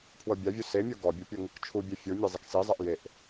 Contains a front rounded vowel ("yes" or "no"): no